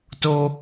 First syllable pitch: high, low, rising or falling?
high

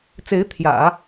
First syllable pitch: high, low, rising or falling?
rising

